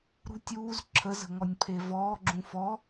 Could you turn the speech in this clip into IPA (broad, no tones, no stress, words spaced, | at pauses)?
ɾṳtʲ uːz ǁʰəzə̤ ŋɔnʲpʰevɔː ɡ͡ǁũfɔ